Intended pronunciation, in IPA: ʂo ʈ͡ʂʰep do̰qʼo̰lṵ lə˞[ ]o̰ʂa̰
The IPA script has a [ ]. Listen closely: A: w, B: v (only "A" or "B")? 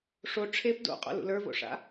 B